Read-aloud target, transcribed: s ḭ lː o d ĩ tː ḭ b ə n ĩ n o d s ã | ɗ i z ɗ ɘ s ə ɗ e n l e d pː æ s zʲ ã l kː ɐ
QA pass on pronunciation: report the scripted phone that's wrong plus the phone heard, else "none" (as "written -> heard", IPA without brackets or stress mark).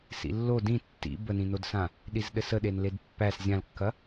none